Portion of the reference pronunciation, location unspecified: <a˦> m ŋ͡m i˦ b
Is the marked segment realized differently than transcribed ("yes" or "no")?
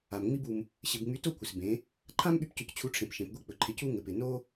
yes